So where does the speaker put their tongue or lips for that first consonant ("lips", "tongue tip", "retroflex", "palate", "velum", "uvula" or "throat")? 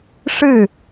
retroflex